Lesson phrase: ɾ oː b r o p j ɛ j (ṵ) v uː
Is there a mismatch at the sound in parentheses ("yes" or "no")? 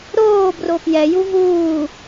yes